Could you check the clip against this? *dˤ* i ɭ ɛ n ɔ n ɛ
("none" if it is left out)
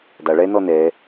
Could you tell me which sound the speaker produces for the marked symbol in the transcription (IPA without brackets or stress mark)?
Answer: dˤ